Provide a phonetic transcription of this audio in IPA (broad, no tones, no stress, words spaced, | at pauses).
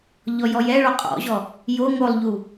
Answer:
ʎɔjɔjɛɭɔ qʼɔ̰ʑɔ | jo ŋolˠʎu